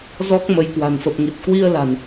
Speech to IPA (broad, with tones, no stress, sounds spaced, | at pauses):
z ɔ˦˥ k̚ m ə˨˦ j k w a̤˨˩ n f ə˨˩ p̚ ŋ i˨˩ t̚ k w i˧ ə̯ l a̤˨˩ n